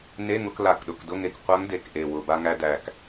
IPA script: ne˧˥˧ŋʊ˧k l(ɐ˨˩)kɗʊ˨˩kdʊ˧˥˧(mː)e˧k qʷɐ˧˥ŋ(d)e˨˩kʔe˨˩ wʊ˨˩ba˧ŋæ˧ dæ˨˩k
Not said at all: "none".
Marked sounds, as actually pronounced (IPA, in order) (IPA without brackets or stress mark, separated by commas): a˨˩, ŋ, d